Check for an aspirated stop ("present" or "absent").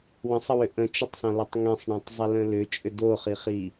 absent